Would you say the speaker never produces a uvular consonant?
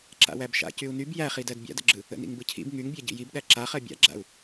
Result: no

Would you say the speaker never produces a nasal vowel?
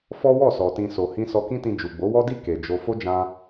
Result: no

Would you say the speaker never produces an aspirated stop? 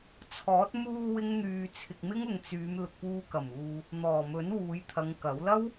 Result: no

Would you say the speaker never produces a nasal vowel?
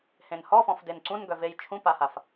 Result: no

